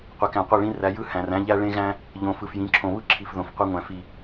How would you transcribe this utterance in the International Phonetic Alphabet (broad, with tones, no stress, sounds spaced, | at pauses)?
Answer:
qʷ e˨ k æ̃˨ qʷ e˦˨ ɭ ĩ˦ r æ˨˦ j ɯ˦ h æ̃˨ r æ̃˦ ʎ æ˦ ɭ ẽ˦ ɣ æ̃˦ | ʎ õ˨ f ɯ˨ f j ĩ˨˦ ǁʰ õ˨ β ɯ˦ ǁʰ i˨ f ð õ˨ f qʷ e˦ ŋʷ æ̃˨ f i˨